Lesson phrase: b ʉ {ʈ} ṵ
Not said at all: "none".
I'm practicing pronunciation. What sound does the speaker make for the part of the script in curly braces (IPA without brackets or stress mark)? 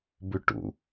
ʈ